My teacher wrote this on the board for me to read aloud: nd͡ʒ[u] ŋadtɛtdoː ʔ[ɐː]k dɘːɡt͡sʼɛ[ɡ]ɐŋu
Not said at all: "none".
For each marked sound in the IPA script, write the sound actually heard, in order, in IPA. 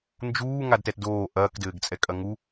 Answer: uː, ɐː, kʼ

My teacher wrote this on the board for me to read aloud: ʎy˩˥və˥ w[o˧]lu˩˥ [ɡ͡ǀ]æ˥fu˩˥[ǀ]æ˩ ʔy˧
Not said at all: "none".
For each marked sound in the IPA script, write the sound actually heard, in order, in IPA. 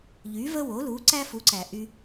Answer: o˩˥, ǀ, ǀ

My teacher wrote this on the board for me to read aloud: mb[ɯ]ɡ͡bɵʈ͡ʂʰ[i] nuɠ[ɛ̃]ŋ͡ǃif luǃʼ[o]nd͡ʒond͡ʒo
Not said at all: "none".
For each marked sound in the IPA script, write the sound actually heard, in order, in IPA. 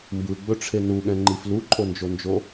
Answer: ɯ, e, ɛ̃, o

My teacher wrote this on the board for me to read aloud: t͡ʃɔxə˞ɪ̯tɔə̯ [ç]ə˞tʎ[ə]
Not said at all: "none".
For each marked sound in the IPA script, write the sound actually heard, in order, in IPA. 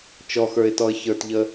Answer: ç, ə

